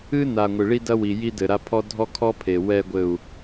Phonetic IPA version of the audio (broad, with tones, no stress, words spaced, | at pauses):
ɨ˦na˨ ŋʷɨ˨ɭi˦dɐ˦wi˨ ji˧dɘ˨ ɾa˧pʰɔ˦ dʱɔ˦kʰɔ˦pʰe˨ wɛ˨ɡʷɘ˨u̯